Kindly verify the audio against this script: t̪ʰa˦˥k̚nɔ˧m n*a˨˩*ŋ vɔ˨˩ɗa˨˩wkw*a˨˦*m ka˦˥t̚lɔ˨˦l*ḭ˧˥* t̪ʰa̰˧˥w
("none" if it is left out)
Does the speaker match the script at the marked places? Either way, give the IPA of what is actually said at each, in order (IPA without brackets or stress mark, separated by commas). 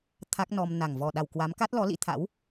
a˨˩, a˨˦, ḭ˧˥